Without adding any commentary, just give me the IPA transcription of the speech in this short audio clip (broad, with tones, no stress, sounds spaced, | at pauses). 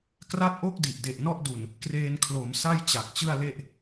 k r a˦˥ t̚ ʔ o˥˩ k̚ d i˨˩ ʔ d e˨˩ ʔ n ɔ˥˩ ʔ d u˨˩ n | k r eː˧ n kʰ l o˩˦ m s a˥˩ j t͡ɕ a˨˩ k̚ t͡ɕ ɯ˥˩ a̯ l e˥˩ ʔ